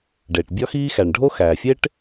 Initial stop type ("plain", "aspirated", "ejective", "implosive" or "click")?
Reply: plain